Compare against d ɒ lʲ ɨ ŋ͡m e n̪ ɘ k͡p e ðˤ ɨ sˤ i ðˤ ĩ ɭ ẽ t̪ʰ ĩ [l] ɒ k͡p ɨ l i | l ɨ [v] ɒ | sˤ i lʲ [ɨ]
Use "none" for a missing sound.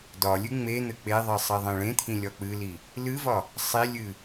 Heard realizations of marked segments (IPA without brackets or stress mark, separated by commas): lʲ, v, ɨ